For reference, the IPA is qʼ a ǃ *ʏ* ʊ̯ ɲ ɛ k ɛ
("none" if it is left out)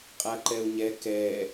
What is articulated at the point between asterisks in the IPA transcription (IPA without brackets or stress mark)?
ɛ